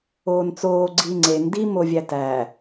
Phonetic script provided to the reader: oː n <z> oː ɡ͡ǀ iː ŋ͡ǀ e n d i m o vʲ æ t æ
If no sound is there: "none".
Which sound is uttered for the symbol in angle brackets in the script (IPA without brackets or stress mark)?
t͡s